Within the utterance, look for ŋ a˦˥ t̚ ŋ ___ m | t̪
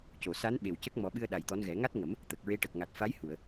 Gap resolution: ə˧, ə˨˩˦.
ə˨˩˦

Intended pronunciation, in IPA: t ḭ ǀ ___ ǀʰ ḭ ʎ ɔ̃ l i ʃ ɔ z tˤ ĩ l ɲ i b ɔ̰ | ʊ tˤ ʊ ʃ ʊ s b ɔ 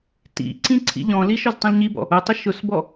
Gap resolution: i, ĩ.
ĩ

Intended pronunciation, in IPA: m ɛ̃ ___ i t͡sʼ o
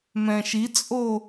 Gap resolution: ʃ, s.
ʃ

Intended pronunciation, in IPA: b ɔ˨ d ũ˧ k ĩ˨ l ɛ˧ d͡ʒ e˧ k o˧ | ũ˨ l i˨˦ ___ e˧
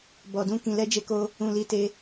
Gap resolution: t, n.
t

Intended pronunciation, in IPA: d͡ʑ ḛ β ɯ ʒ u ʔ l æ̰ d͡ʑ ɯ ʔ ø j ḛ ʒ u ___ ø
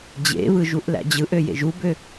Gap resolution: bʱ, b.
b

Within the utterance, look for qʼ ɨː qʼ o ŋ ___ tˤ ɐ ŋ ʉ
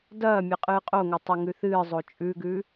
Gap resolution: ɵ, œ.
ɵ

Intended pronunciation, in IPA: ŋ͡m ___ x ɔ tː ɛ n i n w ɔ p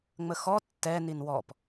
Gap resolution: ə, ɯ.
ə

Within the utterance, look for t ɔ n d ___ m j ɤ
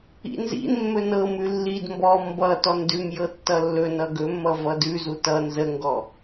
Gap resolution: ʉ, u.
ʉ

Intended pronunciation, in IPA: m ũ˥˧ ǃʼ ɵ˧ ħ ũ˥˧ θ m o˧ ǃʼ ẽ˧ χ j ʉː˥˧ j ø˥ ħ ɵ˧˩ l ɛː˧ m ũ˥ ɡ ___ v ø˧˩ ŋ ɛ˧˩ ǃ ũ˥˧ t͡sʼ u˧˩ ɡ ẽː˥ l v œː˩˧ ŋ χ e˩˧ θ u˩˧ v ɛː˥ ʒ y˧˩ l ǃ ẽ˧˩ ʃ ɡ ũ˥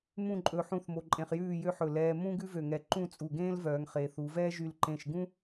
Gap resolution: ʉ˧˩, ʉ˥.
ʉ˥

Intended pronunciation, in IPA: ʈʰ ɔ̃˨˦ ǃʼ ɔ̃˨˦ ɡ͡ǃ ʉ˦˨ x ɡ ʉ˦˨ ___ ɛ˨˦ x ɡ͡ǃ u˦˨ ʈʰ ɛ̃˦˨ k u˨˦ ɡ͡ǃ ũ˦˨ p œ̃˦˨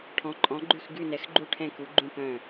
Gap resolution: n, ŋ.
n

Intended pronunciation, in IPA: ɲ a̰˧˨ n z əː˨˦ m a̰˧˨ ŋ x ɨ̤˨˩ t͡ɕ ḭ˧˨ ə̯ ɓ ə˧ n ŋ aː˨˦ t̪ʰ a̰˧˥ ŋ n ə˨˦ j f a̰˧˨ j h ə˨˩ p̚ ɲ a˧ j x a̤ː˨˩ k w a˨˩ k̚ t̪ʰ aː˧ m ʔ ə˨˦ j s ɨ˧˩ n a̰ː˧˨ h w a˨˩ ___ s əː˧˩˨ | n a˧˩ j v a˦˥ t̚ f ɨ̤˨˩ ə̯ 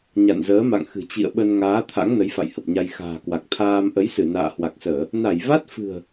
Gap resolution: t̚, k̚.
k̚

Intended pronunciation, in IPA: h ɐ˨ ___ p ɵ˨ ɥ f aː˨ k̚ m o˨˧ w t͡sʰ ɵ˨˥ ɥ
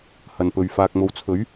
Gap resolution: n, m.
n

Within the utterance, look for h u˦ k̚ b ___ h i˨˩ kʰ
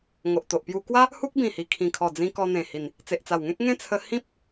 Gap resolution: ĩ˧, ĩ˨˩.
ĩ˨˩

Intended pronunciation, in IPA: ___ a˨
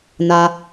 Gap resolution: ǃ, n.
n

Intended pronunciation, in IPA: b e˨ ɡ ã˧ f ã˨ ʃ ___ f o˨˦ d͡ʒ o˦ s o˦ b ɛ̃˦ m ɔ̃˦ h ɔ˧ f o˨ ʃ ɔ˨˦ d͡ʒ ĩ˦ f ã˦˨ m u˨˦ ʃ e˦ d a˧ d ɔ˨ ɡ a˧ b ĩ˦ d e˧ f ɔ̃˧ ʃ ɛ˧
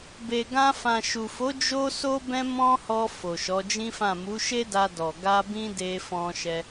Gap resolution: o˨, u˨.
u˨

